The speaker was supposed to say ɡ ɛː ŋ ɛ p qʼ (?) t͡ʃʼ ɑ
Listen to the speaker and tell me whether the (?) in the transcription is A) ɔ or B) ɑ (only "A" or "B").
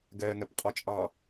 A